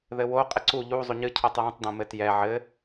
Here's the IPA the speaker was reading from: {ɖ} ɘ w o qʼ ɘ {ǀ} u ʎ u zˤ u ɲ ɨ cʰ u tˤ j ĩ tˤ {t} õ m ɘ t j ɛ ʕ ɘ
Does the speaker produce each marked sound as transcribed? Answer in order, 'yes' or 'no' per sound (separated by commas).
no, yes, no